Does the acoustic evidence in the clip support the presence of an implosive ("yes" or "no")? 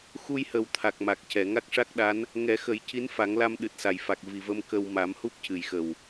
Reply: yes